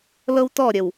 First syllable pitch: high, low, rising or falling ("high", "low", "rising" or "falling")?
high